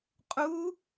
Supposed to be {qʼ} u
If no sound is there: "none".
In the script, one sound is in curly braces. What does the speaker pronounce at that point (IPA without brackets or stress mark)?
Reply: qʼ